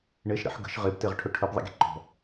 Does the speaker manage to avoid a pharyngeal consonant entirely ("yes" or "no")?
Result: no